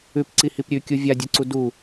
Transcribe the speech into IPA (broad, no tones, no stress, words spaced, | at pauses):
ʉpǀihip ɾʲʉkʲu vʲadʲɵǀu du